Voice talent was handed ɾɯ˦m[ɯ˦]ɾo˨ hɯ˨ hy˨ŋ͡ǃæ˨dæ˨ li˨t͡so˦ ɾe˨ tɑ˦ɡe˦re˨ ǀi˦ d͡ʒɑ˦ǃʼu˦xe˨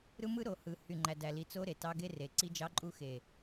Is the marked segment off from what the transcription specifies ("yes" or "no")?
no